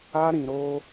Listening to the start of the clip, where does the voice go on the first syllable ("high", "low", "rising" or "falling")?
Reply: high